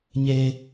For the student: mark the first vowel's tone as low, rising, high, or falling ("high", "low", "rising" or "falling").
low